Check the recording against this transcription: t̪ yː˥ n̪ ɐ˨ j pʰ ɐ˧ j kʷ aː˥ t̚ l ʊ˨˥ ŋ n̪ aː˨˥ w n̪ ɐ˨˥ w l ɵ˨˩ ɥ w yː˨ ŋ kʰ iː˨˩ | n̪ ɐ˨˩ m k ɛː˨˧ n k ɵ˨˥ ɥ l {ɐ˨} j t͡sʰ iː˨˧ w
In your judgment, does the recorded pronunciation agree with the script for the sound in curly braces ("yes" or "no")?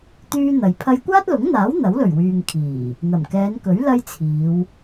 no